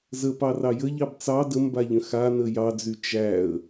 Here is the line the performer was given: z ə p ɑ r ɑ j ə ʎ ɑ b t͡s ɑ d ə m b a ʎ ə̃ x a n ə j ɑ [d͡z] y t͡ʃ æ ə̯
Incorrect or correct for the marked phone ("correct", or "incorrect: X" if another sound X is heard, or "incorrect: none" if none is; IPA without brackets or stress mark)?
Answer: correct